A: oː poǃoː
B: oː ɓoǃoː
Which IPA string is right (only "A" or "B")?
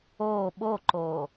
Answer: B